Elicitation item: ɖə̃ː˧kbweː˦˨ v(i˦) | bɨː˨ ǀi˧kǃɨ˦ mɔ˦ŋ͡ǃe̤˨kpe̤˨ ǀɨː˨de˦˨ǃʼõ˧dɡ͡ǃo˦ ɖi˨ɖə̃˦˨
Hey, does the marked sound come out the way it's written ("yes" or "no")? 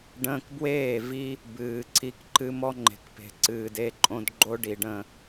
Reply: yes